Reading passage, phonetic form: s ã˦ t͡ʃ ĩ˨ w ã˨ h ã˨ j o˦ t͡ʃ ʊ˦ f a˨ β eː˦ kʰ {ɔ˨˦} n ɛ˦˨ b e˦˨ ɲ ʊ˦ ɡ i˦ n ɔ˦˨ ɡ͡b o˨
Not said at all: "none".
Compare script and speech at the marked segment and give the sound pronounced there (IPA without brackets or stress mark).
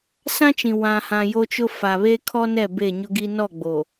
ɔ˦